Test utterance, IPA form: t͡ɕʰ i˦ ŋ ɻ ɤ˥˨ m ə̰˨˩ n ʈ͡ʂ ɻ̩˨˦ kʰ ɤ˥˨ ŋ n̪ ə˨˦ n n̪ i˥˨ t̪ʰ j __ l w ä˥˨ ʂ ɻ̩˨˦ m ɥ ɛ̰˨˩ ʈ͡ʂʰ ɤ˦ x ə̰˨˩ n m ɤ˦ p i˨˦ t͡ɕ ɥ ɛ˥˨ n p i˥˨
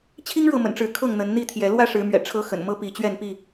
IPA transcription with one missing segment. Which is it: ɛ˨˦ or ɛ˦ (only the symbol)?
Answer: ɛ˨˦